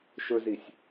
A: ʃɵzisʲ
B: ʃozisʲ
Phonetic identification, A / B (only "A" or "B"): A